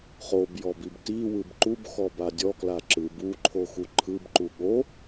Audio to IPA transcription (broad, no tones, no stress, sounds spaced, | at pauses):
χ o b j ɔ b i b t i w ɯ b ǃ u b x ɔ b a dʲ ɔ k l a ǁ ɯ b u ǃʰ o x u ǃʰ ɯ b ǃ u ɠ o